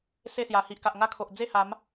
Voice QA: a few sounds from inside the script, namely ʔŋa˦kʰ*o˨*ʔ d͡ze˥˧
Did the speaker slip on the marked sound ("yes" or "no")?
no